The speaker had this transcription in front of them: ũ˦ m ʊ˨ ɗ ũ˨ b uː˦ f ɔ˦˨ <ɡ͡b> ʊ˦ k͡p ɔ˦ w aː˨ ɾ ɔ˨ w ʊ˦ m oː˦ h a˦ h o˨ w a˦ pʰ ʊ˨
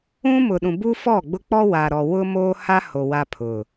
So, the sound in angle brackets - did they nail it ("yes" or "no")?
yes